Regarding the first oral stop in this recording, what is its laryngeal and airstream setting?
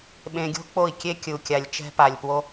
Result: implosive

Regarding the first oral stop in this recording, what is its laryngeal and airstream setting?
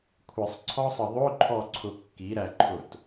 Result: aspirated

